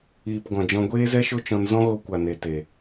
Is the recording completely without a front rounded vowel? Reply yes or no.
yes